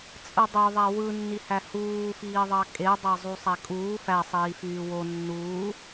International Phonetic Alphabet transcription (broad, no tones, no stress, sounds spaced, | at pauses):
t͡sʼ ɯ dˤ ø ðˤ æ w ɯ nː i h æ h uː f iː ðˤ ɑ kʼ e dˤ ɑ zˤ u sˤ æ kʼ uː f æ sˤ iː f yː w o nː uː